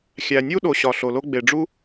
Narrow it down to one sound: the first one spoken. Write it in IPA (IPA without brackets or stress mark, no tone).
xʲ